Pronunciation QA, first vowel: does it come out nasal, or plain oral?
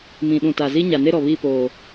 nasal